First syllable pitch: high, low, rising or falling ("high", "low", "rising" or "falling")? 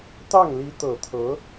falling